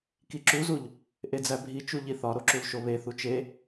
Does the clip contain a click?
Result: yes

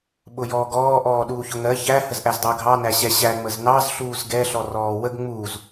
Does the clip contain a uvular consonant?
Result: no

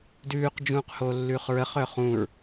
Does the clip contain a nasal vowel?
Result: yes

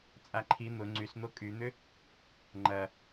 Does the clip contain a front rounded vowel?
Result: yes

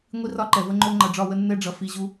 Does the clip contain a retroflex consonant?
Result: yes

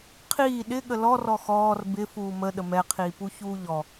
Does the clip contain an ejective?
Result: no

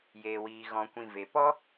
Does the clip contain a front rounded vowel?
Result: no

